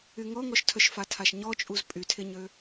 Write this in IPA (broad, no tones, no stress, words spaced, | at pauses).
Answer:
yŋɔŋɔʃtʰœʃ fatʰaʃɲɔt͡ʃʼuz pʼytʰeɲø